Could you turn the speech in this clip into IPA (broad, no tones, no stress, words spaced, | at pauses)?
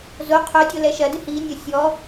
zo qʰodʲo lɛʃɐdɨ hinʲo sʲɔ